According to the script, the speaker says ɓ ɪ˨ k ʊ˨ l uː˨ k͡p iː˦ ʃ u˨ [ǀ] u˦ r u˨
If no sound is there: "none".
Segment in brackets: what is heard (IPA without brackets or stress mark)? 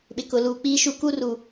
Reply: k